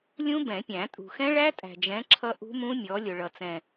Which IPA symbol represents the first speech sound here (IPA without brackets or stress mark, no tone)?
lʲ